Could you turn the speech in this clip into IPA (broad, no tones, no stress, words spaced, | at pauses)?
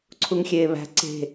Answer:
ǀʰuŋxʲeːβæ̤ ǀe̤